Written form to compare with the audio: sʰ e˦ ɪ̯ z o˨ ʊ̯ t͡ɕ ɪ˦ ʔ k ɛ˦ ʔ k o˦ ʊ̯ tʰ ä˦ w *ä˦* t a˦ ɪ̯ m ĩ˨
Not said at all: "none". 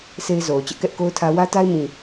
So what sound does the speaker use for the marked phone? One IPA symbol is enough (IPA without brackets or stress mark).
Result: ä˦